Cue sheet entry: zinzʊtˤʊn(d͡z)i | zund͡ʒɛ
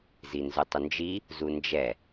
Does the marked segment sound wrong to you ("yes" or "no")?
yes